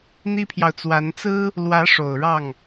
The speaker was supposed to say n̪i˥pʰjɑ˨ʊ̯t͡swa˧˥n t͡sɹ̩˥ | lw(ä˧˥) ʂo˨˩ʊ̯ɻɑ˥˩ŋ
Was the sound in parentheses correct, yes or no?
yes